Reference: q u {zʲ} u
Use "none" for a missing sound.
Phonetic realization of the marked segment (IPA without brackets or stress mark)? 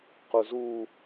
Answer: z